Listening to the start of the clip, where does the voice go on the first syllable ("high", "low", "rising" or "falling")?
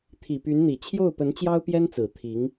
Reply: low